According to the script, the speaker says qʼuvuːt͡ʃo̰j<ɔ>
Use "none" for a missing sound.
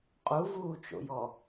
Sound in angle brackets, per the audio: ɔ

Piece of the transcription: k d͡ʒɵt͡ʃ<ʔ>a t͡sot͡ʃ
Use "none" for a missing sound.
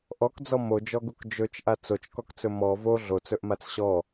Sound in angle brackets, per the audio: ʔ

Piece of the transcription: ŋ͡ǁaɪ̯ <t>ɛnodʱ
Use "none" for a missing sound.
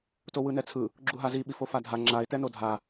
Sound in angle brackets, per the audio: t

